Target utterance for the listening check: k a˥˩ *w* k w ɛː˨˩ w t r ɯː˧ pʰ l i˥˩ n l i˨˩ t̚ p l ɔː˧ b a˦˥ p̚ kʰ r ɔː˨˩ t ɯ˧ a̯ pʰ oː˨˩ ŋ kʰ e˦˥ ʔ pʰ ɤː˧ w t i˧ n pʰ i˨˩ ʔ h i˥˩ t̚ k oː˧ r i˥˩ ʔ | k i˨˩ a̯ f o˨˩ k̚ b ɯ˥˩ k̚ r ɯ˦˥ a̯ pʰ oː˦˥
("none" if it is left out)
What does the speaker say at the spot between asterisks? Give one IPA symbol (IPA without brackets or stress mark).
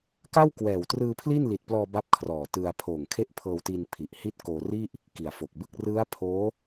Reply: w